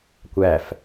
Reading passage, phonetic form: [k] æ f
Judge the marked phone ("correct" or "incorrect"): incorrect